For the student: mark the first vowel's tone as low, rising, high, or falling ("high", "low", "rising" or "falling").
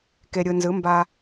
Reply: low